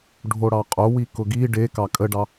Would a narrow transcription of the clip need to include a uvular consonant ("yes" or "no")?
yes